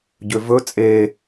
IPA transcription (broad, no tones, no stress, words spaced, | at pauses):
ɟøvɵ t͡sʼe